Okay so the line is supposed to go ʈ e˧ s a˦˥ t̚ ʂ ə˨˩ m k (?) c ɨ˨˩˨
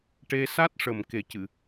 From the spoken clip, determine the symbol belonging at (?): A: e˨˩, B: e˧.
A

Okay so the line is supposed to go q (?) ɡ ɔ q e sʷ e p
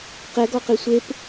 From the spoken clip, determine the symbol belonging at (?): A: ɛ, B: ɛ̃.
A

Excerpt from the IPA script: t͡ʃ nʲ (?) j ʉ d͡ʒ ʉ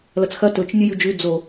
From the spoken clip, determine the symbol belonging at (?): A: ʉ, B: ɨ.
B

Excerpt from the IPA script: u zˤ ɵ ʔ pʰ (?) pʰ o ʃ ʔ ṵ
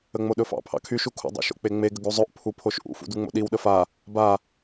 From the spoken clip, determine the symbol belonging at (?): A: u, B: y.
A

